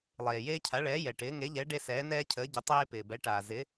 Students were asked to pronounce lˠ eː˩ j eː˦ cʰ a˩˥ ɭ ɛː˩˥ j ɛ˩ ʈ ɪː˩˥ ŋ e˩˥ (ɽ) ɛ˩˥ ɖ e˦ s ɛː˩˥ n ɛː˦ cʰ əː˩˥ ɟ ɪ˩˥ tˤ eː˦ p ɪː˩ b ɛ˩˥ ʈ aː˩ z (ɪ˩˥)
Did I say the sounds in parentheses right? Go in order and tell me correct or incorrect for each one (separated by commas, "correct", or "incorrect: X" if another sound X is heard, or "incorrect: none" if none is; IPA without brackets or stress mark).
incorrect: ʎ, correct